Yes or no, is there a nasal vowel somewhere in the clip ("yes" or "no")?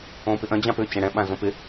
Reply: yes